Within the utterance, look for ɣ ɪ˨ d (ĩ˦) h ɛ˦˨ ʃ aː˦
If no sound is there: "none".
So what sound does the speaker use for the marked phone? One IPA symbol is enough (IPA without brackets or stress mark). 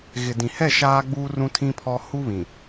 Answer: ĩ˨